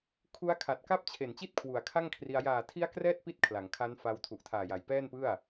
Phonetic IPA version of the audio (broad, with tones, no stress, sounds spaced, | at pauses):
kʰ u˦˥ a̯ kʰ a˨˩ t̚ k a˥˩ p̚ t͡ɕʰ e˨˩ n t͡ɕ i˥˩ t̚ kʰ w u˩˦ a̯ kʰ a˥˩ ŋ kʰ r i˧ a̯ j aː˨˩ tʰ i˦˥ a̯ k r ɛː˥˩ t̚ p i˦˥ t̚ kʰ l a˩˦ ŋ kʰ a˦˥ n f a˧ w tʰ u˨˩ ʔ tʰ aː˨˩ j a˨˩ j p ɛː˥˩ n p ɯ˥˩ a̯